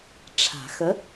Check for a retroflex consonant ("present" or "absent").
present